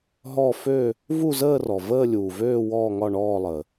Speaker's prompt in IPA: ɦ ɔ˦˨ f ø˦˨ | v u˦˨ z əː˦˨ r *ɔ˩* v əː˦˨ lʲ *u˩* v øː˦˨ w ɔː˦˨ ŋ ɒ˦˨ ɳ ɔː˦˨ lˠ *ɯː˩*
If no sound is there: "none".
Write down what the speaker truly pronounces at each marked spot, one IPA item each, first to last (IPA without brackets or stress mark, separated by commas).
ɔ˩, uː˩, əː˩